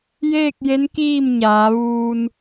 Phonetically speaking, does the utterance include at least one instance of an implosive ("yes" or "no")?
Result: no